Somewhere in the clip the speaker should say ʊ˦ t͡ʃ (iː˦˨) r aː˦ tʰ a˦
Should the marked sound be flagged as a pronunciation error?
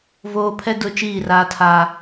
no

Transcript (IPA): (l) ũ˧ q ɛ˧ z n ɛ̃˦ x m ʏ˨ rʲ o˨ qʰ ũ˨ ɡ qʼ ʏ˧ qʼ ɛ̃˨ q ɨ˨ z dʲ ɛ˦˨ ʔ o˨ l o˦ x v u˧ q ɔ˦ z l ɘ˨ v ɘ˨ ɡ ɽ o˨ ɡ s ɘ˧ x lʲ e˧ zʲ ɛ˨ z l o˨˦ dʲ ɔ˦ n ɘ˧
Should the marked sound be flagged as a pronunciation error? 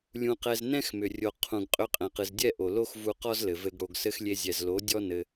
yes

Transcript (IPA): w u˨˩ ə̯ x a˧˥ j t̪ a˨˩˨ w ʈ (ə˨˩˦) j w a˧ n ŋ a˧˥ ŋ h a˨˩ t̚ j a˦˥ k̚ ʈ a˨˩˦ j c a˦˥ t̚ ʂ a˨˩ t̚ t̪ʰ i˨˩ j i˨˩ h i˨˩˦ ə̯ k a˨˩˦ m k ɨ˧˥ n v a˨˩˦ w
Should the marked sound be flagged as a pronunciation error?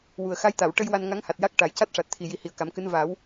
yes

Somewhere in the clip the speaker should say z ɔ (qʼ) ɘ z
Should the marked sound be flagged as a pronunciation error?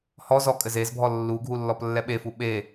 yes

